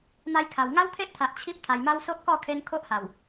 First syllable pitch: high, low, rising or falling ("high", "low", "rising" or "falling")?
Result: high